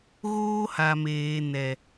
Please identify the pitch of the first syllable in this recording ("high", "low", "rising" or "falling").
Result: high